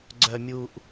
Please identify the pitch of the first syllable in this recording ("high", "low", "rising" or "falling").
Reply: low